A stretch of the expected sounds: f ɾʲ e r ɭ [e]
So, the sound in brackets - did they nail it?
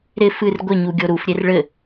no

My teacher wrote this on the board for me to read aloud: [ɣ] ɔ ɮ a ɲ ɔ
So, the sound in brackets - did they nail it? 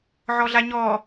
no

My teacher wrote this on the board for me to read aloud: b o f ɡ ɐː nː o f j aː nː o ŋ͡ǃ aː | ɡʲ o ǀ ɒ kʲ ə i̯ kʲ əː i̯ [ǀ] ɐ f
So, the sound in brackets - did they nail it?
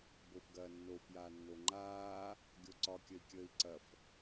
yes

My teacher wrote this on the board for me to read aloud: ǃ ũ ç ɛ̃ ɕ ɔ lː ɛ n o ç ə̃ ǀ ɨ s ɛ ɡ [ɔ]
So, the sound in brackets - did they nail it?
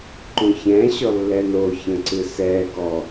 yes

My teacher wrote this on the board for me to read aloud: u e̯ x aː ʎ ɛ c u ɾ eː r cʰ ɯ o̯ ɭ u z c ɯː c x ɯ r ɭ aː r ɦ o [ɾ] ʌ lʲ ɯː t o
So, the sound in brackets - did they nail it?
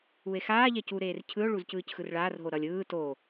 yes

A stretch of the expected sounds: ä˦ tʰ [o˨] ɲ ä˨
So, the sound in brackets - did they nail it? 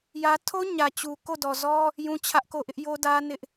no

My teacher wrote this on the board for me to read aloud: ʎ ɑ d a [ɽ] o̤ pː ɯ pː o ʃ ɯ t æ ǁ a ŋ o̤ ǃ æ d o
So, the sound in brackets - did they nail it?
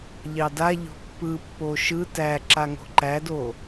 no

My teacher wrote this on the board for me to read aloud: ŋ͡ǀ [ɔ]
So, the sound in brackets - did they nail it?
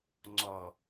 yes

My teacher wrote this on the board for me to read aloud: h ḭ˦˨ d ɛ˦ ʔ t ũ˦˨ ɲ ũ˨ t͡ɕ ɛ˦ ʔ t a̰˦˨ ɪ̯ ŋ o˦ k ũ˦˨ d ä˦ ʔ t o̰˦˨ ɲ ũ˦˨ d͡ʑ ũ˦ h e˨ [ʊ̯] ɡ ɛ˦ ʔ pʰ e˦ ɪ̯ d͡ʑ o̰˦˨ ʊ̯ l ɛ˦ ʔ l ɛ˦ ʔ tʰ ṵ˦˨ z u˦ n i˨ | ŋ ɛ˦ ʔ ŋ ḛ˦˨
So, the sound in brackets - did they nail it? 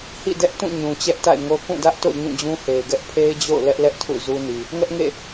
no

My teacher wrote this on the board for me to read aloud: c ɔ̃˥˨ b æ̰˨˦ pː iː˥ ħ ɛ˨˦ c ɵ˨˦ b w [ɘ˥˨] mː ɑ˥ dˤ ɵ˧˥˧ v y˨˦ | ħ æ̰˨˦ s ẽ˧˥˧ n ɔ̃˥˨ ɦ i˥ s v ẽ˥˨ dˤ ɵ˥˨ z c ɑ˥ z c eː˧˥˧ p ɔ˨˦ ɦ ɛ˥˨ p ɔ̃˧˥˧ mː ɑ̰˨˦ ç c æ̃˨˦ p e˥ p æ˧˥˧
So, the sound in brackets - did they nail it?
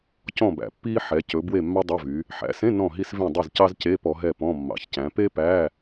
no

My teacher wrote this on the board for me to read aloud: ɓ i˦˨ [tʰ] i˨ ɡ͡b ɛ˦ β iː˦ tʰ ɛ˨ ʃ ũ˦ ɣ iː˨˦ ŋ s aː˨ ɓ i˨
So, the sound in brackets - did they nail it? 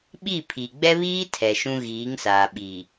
no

